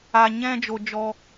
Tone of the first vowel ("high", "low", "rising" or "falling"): high